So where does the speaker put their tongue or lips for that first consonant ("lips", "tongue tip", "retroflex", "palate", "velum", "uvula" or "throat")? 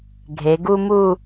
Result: velum